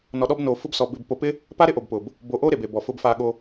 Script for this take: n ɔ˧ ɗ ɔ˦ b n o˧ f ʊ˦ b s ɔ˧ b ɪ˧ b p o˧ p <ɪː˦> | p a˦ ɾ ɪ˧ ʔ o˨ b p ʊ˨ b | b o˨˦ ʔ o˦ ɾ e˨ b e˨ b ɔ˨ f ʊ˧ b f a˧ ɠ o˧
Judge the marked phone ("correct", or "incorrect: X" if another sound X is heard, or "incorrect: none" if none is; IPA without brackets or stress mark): incorrect: ɪ˦